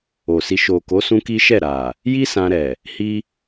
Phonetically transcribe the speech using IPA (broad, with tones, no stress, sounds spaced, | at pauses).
o˨ s i˧ ʃ o˨ k o˨˦ s ũ˦ k i˦ ʃ ɛ˦˨ ɾ a˨ | j i˦ s ã˧ ɾ ɛ˨ | h i˦